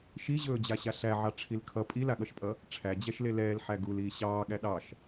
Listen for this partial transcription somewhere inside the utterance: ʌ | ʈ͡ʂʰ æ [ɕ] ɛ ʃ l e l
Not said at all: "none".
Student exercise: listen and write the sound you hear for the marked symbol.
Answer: d͡ʑ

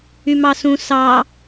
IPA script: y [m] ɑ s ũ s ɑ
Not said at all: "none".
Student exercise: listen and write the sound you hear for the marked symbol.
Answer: m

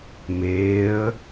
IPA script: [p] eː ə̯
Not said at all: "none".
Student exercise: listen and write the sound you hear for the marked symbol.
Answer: m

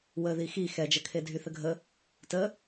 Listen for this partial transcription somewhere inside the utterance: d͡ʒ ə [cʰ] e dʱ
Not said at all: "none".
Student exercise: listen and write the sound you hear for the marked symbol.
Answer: kʰ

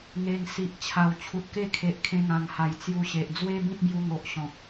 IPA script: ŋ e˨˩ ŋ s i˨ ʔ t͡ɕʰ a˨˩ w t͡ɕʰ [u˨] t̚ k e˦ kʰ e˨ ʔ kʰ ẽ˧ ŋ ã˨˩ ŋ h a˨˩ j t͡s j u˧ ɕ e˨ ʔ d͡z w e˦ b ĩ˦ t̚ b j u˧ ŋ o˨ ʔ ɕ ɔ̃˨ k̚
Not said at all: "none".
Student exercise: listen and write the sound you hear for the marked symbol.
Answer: u˨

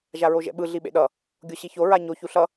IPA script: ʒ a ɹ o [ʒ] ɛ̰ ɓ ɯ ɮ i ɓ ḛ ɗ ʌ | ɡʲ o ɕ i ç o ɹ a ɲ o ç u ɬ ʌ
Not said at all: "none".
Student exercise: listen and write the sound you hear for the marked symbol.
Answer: ʒ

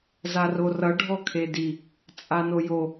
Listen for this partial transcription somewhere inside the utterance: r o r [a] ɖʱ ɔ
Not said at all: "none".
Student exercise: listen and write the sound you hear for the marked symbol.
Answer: ʌ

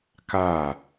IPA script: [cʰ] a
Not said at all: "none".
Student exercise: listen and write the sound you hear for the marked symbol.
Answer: k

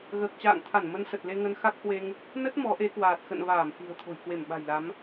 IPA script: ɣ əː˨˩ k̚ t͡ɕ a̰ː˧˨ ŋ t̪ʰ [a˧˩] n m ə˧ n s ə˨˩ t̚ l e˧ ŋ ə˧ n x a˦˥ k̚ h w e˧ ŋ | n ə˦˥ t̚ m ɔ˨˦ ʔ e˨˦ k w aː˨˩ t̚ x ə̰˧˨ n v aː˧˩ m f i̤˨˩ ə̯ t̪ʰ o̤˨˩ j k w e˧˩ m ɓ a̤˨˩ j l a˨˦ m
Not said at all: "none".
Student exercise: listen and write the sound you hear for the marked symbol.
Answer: a˧˩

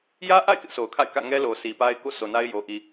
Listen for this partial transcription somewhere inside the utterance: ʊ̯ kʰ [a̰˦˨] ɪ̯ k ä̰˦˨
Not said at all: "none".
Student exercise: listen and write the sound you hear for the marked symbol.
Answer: a̰˦˨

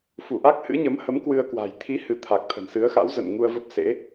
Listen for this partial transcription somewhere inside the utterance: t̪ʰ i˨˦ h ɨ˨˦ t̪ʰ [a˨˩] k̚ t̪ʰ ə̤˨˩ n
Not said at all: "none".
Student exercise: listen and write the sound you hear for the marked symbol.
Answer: a˨˩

